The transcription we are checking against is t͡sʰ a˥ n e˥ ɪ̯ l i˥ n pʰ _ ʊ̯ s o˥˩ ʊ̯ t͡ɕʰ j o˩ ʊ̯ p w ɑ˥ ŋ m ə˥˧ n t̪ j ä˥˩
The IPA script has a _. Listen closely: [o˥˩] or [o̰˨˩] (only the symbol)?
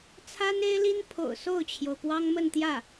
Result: o̰˨˩